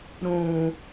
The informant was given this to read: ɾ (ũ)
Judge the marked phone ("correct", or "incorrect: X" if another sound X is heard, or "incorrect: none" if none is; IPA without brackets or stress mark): correct